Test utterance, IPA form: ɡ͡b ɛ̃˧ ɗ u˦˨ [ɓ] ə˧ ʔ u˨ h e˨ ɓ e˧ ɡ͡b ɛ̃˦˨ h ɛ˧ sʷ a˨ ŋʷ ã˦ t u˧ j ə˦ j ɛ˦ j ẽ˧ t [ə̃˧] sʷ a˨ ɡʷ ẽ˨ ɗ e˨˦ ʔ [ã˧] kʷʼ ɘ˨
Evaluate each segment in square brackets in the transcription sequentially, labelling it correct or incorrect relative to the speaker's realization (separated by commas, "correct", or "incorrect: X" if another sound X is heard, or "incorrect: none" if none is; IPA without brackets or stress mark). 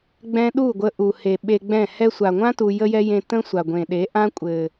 incorrect: ɡʷ, incorrect: ə̃˦, incorrect: ã˦